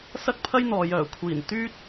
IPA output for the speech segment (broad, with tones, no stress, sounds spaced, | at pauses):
s ɐ˥ k̚ pʰ ɐ˥ j n̪ ɔː˨ j œː˨˩ kʷʰ iː˨˩ n t̪ yː˥ t̚